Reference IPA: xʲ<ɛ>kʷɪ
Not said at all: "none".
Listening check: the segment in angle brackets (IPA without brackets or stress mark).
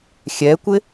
ɛ